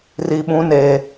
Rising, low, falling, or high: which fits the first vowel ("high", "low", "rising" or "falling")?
low